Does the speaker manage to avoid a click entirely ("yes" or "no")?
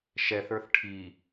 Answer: yes